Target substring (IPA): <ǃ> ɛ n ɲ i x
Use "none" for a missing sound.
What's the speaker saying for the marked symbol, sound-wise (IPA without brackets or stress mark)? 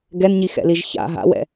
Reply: ɡ